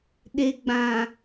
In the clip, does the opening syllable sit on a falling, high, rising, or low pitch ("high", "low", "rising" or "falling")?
low